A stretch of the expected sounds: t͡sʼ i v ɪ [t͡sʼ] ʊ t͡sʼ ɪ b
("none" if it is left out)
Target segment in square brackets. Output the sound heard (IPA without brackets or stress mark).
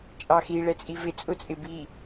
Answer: t͡sʼ